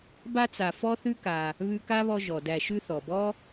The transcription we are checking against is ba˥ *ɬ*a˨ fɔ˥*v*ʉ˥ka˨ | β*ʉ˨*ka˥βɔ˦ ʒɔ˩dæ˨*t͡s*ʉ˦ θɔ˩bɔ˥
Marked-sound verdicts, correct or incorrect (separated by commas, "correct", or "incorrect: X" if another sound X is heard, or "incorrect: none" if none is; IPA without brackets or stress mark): incorrect: t͡s, incorrect: θ, incorrect: ʉ˦, incorrect: ʃ